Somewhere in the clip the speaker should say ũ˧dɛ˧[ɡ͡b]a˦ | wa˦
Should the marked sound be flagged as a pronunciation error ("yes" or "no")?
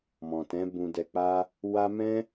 yes